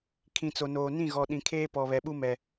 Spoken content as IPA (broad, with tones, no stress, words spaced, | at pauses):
kʰĩ˨t͡so˨noː˨ nĩ˦˨ɣɔ˨ɗĩ˨kʰeː˦ pɔ˨βɛ˨ɓu˦mɛ˨